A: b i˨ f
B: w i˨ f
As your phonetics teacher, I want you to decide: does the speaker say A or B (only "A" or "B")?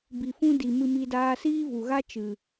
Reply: A